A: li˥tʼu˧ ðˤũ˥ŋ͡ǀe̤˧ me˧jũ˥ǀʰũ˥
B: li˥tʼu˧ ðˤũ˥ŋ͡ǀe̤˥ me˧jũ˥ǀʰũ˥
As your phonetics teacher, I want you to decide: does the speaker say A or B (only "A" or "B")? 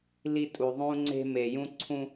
B